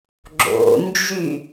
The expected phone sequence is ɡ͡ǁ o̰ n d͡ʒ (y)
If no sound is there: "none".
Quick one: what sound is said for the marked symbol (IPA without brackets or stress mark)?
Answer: y